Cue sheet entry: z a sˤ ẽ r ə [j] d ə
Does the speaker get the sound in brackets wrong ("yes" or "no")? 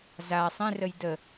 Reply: no